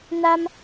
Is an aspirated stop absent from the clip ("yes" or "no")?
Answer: yes